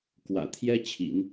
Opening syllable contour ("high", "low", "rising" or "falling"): low